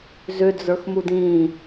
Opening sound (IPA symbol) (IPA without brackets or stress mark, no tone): z